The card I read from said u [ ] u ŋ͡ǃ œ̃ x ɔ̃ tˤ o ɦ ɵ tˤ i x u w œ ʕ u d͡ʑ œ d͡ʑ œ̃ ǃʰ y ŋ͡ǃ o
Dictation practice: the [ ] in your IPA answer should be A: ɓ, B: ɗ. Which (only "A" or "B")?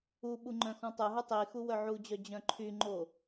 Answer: A